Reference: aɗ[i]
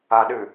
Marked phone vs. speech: incorrect: ɨ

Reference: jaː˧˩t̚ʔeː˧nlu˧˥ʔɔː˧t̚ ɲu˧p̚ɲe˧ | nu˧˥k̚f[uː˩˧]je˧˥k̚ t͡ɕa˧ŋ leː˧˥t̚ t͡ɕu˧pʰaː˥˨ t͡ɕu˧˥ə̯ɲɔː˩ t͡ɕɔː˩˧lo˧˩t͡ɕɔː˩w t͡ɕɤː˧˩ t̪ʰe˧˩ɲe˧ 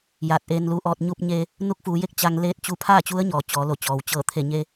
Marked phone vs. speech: correct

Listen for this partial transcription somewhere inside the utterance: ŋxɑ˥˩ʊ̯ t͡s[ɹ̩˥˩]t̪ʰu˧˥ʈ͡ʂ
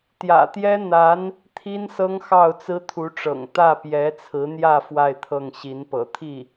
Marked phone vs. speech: incorrect: ɹ̩˥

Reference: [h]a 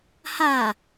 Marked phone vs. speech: correct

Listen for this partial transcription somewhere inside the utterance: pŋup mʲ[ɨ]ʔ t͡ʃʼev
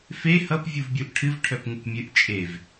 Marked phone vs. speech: correct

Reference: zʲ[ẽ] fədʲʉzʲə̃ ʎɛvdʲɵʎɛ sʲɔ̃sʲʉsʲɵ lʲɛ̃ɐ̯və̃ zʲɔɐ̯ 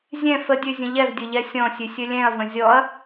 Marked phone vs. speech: incorrect: ɛ̃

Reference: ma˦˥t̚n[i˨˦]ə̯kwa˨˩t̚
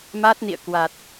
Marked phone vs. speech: incorrect: ḭ˧˨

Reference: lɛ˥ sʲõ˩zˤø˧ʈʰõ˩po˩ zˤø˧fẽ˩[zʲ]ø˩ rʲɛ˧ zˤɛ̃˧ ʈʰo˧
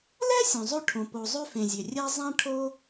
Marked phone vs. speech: correct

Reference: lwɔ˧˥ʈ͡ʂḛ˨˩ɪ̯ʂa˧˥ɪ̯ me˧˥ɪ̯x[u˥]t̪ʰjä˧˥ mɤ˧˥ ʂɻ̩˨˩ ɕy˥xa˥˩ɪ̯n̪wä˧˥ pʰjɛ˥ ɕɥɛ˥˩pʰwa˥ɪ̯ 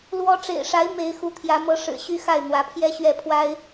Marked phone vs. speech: incorrect: u˧˥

